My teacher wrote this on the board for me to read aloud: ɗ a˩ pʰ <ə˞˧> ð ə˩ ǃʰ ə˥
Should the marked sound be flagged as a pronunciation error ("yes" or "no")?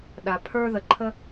no